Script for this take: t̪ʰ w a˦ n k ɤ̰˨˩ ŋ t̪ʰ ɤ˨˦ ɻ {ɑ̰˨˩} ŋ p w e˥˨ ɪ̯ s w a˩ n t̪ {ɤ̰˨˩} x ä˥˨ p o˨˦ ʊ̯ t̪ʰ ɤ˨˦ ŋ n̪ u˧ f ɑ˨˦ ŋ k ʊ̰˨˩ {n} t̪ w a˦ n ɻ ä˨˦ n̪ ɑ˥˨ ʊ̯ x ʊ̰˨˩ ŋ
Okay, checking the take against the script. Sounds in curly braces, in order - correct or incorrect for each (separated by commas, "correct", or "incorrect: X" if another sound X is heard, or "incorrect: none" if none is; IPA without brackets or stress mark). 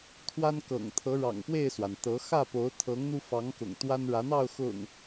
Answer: correct, incorrect: ɤ˨˦, incorrect: ŋ